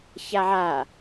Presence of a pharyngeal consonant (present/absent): present